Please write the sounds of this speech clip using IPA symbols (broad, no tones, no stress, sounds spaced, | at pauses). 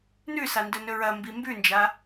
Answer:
n ʉ s a n d ɵ n ɵ ɹ ɐ m b i m b ʉ n d͡ʒ a